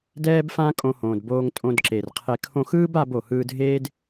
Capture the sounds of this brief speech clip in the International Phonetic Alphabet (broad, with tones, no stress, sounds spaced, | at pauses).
d ɛː˦ b f ã˦ kʼ õ˦ h õː˧ d b oː˦ ŋ tʼ õ˧ d ǁ e˨ r qʰ e˧ kʰ õ˧ x ɯː˦ b a˧ b o˨ h ɯː˧ dʱ eː˦ d